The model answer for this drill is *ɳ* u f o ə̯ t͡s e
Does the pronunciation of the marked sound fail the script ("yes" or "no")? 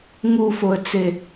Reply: yes